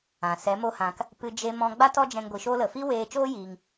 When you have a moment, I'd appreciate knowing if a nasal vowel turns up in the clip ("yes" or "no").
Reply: yes